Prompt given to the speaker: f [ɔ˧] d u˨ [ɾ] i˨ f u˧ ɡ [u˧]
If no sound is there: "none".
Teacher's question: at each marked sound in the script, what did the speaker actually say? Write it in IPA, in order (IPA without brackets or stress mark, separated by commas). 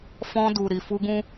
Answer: ɔ̃˧, ɾ, ũ˧